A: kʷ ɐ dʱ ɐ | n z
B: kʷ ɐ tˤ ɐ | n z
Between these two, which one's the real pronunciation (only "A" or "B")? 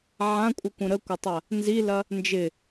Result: B